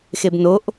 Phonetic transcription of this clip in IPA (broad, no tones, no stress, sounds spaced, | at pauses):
x e b n o ʔ